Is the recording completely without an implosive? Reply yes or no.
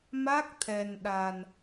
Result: no